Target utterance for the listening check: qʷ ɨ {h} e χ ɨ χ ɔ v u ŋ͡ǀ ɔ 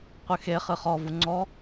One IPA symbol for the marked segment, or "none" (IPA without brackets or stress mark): x